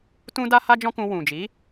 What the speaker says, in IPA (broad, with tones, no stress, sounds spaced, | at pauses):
t ũ˦ d a˦ h a˦ d͡ʒ ɔ̃˦ k ũ˧ w ũ˨ d͡ʒ i˨˦